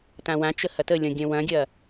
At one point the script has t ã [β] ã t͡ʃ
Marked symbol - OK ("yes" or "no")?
no